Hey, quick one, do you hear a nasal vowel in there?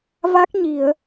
no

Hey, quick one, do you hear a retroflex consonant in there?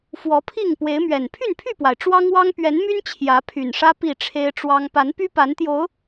yes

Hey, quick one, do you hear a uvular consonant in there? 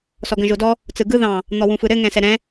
no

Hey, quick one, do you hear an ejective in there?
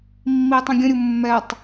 no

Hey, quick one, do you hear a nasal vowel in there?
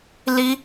no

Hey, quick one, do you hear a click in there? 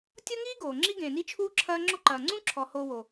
yes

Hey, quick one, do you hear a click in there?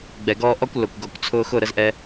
no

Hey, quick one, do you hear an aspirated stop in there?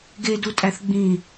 no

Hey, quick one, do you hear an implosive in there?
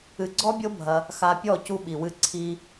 yes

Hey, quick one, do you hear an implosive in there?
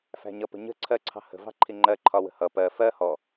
no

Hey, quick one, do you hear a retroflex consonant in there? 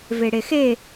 yes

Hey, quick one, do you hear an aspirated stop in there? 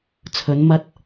yes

